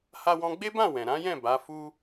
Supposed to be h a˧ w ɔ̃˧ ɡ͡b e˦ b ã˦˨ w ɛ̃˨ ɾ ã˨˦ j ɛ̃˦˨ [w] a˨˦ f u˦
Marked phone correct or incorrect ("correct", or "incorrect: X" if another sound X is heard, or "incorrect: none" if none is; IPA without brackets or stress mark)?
incorrect: b